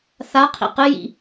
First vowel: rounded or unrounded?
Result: unrounded